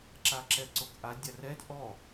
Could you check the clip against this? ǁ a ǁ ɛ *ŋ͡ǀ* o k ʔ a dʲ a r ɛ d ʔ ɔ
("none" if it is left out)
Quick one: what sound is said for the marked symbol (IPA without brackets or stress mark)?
ǀ